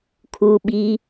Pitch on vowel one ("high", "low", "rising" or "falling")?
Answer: low